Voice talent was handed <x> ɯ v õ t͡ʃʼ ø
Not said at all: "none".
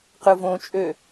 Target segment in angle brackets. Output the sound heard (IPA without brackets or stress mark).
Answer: q